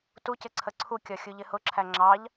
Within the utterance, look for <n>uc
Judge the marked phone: incorrect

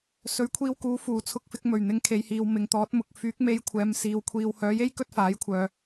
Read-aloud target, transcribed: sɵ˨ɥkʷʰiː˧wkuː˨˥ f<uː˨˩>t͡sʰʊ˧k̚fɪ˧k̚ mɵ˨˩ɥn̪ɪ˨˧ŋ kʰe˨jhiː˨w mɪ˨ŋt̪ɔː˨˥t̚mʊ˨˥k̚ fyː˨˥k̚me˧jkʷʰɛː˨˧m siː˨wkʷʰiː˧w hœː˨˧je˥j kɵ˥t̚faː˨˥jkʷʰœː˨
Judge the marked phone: correct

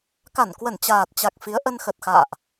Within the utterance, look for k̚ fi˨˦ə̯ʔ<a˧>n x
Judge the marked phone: incorrect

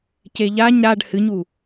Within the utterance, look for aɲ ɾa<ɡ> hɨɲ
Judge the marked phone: incorrect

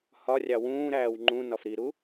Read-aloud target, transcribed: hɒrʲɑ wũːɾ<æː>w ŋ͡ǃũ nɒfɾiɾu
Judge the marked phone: correct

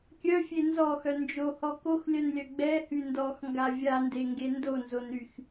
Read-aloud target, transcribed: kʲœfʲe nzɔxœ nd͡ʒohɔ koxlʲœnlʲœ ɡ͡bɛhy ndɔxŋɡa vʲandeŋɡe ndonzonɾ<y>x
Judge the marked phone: correct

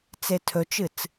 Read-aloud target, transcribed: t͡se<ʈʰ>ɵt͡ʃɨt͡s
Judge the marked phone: incorrect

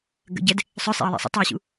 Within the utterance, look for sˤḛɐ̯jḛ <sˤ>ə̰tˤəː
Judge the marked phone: correct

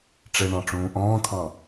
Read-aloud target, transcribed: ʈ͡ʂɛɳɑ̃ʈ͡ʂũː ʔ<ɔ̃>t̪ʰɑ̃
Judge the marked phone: incorrect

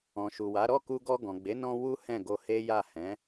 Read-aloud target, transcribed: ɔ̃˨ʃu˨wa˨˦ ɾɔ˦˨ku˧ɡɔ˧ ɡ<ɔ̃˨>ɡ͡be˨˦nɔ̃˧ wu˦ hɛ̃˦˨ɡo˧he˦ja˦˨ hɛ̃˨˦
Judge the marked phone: correct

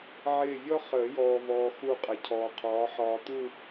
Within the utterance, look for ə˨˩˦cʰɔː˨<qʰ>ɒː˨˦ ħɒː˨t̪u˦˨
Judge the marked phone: correct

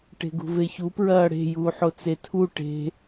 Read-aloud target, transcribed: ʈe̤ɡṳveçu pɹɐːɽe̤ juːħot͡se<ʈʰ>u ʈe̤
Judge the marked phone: incorrect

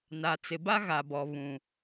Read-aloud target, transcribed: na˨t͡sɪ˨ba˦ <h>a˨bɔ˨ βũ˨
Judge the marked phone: incorrect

